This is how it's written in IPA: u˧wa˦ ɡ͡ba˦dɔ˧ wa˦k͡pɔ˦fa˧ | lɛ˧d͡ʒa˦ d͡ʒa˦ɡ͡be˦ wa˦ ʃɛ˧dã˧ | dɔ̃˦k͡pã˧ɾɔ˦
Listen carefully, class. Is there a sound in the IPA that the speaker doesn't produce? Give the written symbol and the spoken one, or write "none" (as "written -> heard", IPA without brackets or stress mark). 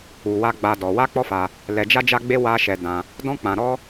none